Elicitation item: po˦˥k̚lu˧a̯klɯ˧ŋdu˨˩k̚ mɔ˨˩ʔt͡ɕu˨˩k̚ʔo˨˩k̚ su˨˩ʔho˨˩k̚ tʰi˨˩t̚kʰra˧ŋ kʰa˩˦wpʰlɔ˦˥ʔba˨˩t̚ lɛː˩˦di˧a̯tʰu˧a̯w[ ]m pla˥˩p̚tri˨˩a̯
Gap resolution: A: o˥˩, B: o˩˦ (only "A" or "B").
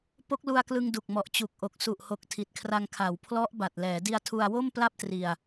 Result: A